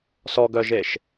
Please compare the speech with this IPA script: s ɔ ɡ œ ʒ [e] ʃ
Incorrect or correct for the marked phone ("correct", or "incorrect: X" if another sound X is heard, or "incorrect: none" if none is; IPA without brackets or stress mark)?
correct